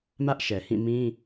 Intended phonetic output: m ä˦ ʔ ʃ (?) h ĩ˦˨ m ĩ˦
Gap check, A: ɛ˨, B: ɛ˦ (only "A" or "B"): A